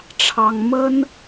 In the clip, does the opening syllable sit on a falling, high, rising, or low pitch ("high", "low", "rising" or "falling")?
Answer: high